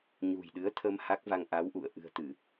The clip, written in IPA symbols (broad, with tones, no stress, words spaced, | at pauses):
ɲṳ˨˩jɗɨ˨˦ə̯t̪ʰə˧m ha˦˥k̚va˧ŋ ʔa˨˦w ʔṵ˧˨ə̯ ʔɨ̤˨˩ə̯t̪ɨ˧˩˨